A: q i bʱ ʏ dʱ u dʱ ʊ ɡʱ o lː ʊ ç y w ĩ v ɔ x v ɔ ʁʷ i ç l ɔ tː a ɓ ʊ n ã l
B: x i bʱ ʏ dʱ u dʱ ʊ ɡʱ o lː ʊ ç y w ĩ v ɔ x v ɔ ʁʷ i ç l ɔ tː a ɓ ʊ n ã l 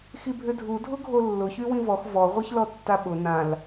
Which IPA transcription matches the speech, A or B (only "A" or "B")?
B